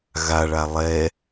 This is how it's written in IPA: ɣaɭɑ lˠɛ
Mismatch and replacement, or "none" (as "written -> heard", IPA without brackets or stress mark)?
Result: ɑ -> a